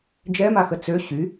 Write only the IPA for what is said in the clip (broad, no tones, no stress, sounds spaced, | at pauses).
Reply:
d͡ʒ ɛ m a x ə t͡s ø ɕ y